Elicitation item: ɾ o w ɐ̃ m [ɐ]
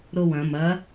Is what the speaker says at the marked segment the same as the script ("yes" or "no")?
yes